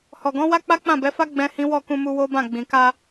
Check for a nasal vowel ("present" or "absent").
present